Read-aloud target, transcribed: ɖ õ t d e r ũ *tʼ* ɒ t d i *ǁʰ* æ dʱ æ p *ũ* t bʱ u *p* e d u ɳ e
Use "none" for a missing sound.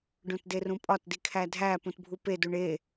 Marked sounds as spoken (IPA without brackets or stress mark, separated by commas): pʼ, kʰ, ũ, p